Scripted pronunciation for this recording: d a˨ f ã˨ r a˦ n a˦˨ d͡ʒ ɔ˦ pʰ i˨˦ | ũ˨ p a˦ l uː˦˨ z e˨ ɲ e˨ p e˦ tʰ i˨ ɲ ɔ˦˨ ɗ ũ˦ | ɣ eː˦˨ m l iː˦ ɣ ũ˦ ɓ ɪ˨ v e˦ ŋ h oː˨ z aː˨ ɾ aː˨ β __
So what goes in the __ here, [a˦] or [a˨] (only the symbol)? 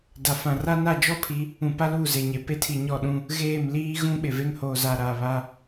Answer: a˦